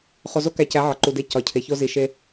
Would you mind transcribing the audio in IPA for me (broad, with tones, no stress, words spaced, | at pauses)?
χo˨zo˦kæ˨cæ˨˦ ʕɒ˨ǃu˨de˦˨ cɒ˨ cʰe˨ço˦ zi˨ ʃe˦